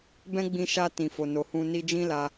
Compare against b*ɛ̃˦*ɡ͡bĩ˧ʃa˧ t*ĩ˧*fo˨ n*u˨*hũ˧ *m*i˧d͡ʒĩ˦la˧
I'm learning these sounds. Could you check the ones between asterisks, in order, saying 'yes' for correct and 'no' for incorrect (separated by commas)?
yes, no, no, no